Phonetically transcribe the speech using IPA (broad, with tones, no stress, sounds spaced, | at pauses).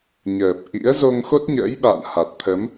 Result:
ɲ əː˨˩ p̚ ʔ ḭ˧˥ ə̯ z o˧ ŋ x o˦˥ t̚ ɲ ə̰ː˧˥ j ɓ a̰ː˧˨ n h a˨˩ t̚ t̪ʰ ə˨˦ m